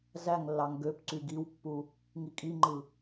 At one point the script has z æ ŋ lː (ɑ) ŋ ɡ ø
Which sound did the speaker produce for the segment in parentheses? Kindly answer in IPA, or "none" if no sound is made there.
ɑ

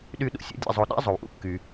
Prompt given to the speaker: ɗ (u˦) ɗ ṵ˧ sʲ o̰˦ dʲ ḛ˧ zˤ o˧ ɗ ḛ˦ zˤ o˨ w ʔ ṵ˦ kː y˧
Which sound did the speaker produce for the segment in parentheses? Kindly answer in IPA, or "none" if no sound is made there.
y˦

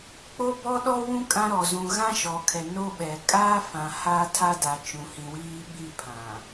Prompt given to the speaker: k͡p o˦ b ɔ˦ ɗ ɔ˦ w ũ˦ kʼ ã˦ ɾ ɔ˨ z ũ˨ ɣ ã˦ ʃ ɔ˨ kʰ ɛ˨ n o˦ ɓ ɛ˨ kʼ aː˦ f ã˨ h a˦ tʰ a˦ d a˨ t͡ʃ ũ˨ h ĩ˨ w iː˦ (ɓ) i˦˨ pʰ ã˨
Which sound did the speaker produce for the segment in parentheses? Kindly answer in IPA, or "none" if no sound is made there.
ɓ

